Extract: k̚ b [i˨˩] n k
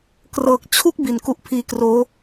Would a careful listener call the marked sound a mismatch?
no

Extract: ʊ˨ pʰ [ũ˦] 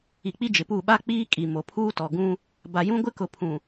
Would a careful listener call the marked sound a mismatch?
yes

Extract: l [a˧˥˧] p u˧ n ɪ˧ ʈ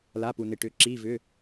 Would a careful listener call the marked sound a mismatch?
no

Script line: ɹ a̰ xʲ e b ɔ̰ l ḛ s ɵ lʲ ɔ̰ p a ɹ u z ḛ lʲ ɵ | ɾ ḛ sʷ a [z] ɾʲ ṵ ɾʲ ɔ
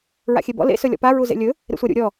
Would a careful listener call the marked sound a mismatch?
yes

